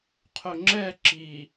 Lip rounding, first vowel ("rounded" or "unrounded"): rounded